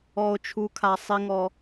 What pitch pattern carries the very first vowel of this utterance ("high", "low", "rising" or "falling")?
low